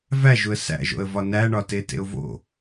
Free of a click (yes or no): yes